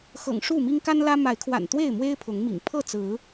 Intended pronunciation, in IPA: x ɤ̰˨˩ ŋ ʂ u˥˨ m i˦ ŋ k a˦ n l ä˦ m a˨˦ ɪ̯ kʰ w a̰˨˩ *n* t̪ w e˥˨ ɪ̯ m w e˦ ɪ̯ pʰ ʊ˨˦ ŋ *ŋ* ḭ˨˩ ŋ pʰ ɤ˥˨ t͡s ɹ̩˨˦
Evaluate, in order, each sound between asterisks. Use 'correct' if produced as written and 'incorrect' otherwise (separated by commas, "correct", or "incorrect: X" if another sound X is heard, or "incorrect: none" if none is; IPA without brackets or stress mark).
correct, incorrect: m